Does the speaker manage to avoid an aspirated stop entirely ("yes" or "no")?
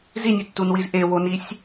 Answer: yes